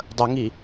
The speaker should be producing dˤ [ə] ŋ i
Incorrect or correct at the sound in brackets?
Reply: correct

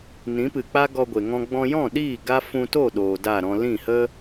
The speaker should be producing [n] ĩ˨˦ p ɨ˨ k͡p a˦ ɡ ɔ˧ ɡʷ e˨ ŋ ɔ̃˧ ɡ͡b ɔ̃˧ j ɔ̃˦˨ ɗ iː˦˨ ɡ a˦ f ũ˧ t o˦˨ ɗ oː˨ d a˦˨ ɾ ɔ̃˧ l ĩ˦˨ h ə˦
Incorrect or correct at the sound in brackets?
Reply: correct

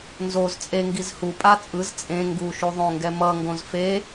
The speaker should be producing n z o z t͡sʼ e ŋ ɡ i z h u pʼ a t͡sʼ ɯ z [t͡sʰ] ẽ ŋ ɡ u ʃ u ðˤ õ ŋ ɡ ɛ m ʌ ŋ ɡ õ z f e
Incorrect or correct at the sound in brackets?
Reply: incorrect: t͡sʼ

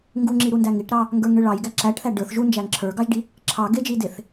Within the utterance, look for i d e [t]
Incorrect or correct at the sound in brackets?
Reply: incorrect: θ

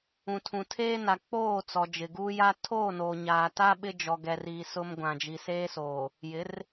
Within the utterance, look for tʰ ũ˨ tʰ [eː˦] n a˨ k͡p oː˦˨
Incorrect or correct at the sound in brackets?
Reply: correct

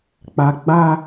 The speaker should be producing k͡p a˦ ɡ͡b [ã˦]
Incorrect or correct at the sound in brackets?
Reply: incorrect: a˦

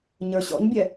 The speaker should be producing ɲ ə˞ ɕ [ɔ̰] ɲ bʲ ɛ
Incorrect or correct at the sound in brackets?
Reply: correct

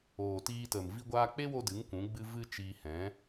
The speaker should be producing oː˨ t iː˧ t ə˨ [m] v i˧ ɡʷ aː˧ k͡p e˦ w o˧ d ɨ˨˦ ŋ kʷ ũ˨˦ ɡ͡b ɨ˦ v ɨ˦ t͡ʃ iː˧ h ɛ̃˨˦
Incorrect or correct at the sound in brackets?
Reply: correct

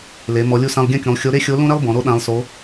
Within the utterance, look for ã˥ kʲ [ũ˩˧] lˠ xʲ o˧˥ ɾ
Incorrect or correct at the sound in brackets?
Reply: correct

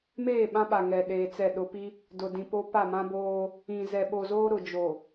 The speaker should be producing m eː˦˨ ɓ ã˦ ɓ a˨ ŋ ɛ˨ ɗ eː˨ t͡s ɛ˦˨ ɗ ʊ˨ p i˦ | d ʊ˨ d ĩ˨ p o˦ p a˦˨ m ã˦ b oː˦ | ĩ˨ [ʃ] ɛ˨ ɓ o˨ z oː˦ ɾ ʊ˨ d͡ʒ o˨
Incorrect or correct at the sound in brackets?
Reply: incorrect: z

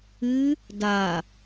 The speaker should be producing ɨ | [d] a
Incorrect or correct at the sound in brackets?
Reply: correct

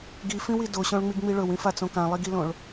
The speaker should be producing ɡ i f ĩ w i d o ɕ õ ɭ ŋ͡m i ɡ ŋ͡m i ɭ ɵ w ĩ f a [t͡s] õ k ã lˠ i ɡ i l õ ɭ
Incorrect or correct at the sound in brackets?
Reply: correct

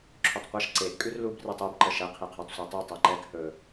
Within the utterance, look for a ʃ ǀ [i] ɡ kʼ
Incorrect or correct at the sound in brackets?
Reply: incorrect: e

